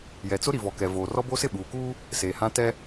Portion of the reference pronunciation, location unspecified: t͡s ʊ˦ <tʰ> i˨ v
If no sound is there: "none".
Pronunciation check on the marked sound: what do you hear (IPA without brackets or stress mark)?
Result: ɾ